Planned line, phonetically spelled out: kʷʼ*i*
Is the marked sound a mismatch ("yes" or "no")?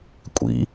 yes